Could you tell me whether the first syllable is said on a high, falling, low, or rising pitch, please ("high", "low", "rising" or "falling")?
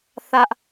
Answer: high